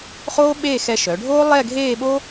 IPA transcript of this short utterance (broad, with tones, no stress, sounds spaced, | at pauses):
χ oː˥ ɓ eː˥˧ x ɛ˧ ʃ œ˩˧ ɖʱ oː˥ lˠ ɛ˥˧ ɡʱ eː˥˧ ɓ o˥